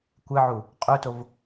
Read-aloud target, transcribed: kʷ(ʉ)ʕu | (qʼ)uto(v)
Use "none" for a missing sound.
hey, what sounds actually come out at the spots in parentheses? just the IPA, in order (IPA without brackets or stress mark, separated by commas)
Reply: ɨ, qʼ, v